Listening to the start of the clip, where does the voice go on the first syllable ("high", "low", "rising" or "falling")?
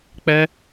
high